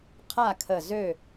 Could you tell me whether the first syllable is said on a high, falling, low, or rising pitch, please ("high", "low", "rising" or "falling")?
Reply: falling